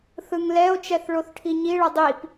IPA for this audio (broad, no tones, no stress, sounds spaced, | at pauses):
θ ɯ ŋ l ɛ o̯ t͡ʃ ɛ θ ɭ o θ ʈʰ i ɲ i ɭ ʌ dˤ i p